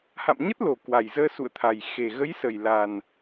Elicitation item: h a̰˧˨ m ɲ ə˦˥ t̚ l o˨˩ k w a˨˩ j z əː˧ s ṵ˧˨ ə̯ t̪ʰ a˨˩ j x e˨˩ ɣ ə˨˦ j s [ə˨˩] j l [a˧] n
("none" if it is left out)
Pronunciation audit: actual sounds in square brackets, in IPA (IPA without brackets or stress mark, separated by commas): ə˨˩, a˨˩